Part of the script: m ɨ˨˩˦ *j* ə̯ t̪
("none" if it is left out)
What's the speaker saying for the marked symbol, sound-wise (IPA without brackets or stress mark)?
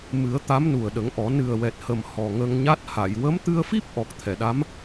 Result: none